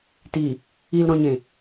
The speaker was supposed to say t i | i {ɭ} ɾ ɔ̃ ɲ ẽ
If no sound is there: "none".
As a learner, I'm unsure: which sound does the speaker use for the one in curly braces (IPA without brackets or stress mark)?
l